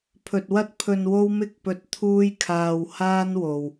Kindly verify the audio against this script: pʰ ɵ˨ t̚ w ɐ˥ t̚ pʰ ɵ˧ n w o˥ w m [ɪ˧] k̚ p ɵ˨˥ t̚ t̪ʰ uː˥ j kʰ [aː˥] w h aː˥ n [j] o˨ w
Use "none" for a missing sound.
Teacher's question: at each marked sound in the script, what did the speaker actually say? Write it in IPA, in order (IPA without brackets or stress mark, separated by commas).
ɪ˧, aː˧, w